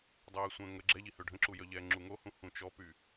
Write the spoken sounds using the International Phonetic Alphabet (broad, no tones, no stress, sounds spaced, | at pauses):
dˤ ɛː sʷ ə̃ː ŋ ə ɡ͡ǁ ɛ ʎ i h ø ɖʱ ə̃ ǁ u j œ ʎ ɛː ŋ͡ǁ u ŋ o h ũ h ũ t͡ʃ ɔ p y